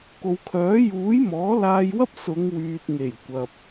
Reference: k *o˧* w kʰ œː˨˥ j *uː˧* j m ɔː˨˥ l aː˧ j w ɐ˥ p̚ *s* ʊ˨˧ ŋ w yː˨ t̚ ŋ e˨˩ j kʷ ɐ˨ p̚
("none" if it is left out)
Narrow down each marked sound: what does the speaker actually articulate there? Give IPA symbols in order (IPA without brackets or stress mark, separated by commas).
o˨, uː˨˥, s